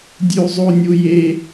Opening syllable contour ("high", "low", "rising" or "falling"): high